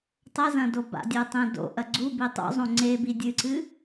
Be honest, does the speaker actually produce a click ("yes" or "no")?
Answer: yes